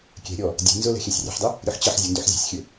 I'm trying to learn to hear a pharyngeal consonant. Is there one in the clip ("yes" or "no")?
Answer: yes